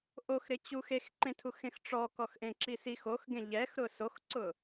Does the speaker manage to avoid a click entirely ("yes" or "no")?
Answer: no